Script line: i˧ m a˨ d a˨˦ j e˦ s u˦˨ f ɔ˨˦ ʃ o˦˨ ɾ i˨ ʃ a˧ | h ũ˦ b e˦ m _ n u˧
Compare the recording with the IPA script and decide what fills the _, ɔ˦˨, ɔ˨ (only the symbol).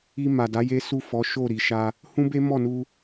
ɔ˦˨